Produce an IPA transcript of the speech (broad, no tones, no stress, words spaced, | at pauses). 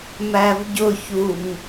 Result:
mævɟʊçuŋ